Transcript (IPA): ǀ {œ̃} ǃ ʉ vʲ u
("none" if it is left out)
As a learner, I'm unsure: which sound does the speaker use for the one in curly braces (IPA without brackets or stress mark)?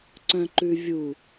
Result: œ̃